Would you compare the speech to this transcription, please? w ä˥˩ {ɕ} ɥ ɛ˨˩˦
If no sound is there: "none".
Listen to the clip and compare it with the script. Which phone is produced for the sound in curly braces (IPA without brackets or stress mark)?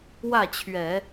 t͡ɕʰ